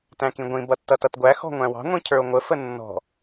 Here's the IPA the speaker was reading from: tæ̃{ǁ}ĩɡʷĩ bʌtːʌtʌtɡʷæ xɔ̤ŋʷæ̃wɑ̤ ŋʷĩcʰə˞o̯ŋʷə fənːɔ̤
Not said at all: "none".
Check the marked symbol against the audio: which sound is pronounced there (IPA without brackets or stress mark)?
k